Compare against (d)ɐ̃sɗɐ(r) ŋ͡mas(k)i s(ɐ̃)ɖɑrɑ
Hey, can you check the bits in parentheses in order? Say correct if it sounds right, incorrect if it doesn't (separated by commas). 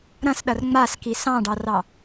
incorrect, correct, correct, incorrect